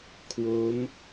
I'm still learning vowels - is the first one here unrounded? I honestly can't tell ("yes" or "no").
no